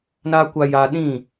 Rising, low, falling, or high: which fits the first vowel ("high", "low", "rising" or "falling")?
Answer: low